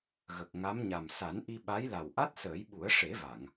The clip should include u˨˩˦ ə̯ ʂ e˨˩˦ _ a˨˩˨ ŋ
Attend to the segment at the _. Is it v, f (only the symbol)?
v